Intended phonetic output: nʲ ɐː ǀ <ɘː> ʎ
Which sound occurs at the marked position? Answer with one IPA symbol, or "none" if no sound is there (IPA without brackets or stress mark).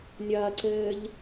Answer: ɘː